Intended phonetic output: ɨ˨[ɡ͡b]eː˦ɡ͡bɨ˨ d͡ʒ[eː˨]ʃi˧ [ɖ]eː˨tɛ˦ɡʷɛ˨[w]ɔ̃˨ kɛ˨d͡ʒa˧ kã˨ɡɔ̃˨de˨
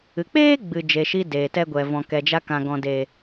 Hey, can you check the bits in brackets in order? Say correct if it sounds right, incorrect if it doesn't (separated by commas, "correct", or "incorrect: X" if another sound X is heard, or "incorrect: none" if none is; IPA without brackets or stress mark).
incorrect: k͡p, incorrect: e˨, incorrect: d, incorrect: v